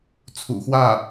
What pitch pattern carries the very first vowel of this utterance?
low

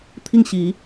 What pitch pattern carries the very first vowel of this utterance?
falling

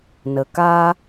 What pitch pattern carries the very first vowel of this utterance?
low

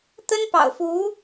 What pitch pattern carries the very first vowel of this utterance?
high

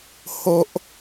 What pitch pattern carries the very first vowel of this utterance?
high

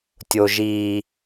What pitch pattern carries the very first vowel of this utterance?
high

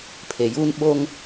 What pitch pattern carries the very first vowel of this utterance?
low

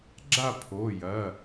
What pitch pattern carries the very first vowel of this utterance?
falling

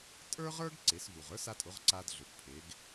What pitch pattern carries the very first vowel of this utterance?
high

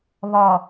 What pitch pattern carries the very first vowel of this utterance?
low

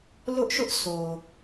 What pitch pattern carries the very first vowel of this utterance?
high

